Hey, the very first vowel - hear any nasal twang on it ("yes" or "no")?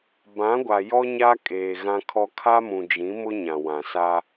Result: yes